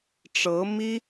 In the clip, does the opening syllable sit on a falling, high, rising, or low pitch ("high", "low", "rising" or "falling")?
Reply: rising